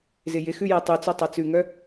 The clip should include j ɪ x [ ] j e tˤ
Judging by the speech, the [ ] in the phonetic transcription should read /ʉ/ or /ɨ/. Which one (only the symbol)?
ʉ